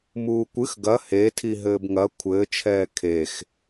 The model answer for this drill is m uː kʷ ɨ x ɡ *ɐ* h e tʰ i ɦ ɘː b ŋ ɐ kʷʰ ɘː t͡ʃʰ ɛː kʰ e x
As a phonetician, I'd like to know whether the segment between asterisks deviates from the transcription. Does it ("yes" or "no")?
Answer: no